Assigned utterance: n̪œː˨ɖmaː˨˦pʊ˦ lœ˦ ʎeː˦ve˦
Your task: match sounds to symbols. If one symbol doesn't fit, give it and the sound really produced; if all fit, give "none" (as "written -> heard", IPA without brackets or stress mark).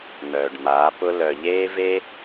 œ˦ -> œ˨